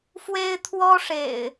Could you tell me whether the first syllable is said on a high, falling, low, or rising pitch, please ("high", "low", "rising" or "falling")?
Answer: high